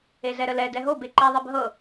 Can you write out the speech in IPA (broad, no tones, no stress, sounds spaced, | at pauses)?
e z ɛ ɾ ə l ɛ d ɛ ɦ o b e ǃ ɛ ðˤ ɛ b ɦ ɤ